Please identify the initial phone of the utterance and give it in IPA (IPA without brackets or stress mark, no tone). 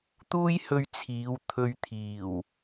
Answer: t̪